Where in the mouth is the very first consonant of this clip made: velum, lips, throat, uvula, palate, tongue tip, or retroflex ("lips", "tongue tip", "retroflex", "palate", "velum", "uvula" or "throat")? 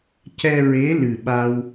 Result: palate